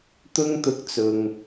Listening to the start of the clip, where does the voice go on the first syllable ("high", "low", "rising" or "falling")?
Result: high